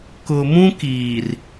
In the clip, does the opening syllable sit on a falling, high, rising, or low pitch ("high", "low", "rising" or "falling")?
low